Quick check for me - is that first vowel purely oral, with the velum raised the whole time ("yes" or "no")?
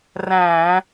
no